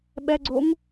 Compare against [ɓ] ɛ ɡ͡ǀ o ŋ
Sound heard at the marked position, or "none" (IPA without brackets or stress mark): ɓ